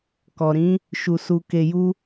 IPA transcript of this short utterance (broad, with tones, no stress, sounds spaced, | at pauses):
k ɔ˨ ɾ ĩ˨˦ | ʃ u˨ s u˨ k e˨ j u˧